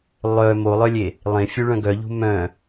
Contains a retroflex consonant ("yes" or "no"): yes